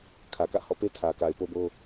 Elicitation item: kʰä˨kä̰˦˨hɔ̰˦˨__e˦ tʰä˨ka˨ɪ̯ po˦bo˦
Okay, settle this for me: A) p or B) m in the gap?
A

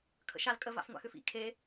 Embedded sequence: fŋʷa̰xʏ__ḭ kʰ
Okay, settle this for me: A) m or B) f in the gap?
B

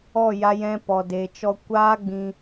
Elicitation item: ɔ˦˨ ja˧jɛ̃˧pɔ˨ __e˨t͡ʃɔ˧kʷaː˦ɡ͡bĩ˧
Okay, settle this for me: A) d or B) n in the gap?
A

